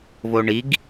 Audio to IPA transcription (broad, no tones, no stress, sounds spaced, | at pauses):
v o ɳ i ɡ